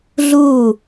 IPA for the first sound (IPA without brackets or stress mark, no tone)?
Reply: ɮ